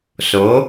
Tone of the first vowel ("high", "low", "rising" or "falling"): rising